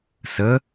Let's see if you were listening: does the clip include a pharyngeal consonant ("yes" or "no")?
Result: no